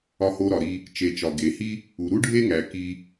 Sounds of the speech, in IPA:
ɒ˧ h o˧ ɾ ɒ˩ ɾ i˧ | t͡ʃ e˩ t͡ʃ ɒ˩ ɡ e˩ h i˥ | u˩ ɾ u˥ ɖʱ e˥ ŋ æ˩ k i˧

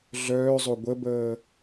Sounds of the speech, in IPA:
ɮ œː zˤ o ɡʷ ə b əː

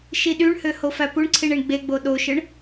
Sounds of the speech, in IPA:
ʃ i ɗ y ɳ h ø h o f æ p u ɳ ǀʰ i ɳ i ɳ ɡ͡b e ɡ͡b o ɗ o ʃ ɯ ɳ

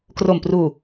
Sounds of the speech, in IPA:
k r o˨˩ m p r uː˨˩

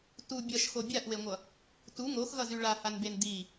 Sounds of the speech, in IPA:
t u bʲ ʌ ʃ x o bʲ a ʔ w e ŋʷ ʌ | t u ŋ o x ɣ ʌ z y ɭ a h a n b e n d i

